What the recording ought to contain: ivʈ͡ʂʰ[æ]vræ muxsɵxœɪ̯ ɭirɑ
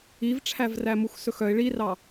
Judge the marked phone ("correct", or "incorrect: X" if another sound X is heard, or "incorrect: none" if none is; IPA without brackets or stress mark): correct